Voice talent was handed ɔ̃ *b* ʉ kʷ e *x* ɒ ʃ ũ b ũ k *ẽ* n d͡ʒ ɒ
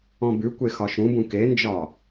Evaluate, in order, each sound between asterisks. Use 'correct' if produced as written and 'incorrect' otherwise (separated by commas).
correct, correct, incorrect